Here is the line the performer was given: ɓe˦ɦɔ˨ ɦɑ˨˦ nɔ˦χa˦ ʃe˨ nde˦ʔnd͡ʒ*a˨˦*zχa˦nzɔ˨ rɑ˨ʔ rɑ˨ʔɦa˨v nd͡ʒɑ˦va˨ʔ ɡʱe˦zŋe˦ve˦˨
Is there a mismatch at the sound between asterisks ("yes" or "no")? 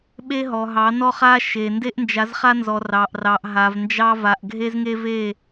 no